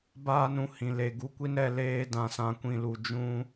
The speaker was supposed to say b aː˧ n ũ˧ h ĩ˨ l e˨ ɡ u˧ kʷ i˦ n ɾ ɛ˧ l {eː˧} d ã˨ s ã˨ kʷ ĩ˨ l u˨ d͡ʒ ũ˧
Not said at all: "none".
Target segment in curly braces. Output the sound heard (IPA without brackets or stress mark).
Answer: eː˧